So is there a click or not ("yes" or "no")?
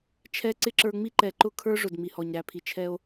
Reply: yes